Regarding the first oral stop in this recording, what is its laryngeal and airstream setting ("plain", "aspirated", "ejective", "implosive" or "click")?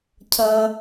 aspirated